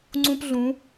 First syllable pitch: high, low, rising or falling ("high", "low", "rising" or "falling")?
high